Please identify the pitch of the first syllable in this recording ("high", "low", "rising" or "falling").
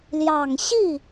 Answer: low